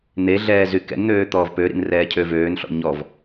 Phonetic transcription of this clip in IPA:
n̪ e ɮ ɛː z y k ɛ̰ n n̪ øː t̪ ɔː v p ø ɾ ḭ n r ɛː cʰ ø v øː n ɬ ɔ̰ ɲ ɔ v

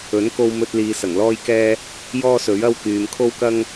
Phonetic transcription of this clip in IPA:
ɵ˨˥ n k o˧ w m ɵ˧ t̚ l iː˨ s ɐ˨˩ ŋ l ɔː˥ j k ɛː˥ | j ɔː˥ s ɵ˨˥ ɥ ɐ˥ w k yː˨ m kʰ o˥ w k ɐ˥ ŋ

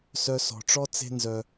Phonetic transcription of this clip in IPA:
s œ˧ s ɔ̤˨ ʈ͡ʂ ɔ˦ t͡s e̤˦ n z œ˧

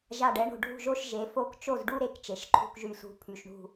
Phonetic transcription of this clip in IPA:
ʒ a˧˩ ɖ ɛ˩˥ ɳ o̤˧˩ ɖʱ ṳ˥˩ ʒ o˥˧ ʃ ʒ e˩˥ f o˥˧ k t͡ʃ o˥˩ z ɖ u˥˧ ɾ e˥˩ k t͡ʃ e˩˥ ʃ ǃʰ ṳ˥˧ k ʒ y˥˩ s ṳ˥˧ pʰ y˧˩ ʃ ɳ ṳ˥˧

